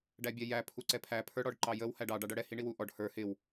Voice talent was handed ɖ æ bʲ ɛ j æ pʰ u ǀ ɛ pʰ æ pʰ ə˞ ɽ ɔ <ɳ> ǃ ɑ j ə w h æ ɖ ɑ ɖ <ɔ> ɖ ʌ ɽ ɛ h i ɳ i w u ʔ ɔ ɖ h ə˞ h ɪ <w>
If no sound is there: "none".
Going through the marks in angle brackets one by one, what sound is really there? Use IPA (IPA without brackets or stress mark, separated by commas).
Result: ɖ, ɑ, w